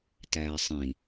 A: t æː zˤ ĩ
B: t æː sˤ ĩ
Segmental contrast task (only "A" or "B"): B